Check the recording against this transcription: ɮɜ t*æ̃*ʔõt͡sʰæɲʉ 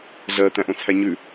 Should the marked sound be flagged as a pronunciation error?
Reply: no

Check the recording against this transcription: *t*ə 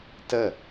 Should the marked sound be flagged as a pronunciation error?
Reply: no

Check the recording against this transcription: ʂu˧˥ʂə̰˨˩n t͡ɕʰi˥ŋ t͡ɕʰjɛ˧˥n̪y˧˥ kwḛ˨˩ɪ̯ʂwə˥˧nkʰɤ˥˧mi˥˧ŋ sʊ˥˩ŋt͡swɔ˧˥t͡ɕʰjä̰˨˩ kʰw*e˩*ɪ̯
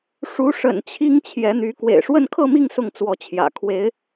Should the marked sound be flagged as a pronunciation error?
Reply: yes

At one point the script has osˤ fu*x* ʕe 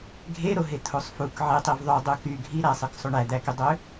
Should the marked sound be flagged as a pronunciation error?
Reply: yes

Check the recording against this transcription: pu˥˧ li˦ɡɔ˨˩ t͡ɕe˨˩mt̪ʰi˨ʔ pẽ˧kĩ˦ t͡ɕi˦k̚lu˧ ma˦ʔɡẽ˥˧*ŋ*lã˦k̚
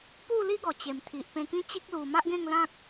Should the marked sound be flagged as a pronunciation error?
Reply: no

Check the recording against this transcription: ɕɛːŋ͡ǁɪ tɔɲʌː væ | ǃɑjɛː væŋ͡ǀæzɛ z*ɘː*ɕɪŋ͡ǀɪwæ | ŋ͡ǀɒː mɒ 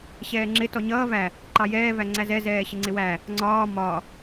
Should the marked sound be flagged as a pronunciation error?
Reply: yes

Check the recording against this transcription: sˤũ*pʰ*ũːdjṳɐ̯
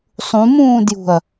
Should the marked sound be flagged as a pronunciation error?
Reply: yes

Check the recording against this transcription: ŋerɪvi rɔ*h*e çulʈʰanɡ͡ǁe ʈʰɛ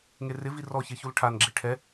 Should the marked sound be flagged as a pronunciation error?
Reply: yes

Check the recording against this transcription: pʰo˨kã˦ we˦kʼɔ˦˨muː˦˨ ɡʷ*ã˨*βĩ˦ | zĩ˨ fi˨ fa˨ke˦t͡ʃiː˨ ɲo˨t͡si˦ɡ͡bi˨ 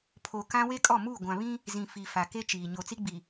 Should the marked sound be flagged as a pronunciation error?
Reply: no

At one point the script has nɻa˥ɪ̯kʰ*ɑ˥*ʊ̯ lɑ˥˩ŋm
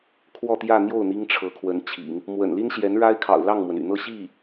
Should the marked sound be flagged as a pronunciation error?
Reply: yes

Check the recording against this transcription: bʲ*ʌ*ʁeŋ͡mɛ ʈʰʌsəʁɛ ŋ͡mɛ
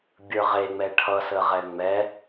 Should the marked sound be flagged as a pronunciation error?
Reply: yes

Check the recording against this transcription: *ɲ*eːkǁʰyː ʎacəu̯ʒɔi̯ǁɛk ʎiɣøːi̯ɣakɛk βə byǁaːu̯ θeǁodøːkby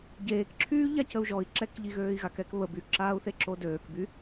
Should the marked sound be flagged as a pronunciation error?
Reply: yes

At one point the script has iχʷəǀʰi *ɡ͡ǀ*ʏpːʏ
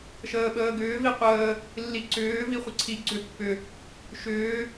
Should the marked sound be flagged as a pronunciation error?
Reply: no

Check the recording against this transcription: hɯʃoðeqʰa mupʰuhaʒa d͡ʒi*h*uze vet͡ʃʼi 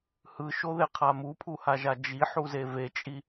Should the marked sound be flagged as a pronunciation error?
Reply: yes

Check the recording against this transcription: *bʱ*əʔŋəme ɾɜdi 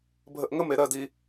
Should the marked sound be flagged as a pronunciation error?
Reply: no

